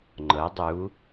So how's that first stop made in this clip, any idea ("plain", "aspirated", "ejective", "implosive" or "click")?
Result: click